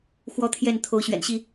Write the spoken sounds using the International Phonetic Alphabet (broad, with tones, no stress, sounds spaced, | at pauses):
x w ɔ˦ t̪ʰ j ɛ˥˨ n t̪ʰ o˨˦ ʊ̯ ɕ ɥ ɛ̰˨˩ n ɕ i˥˨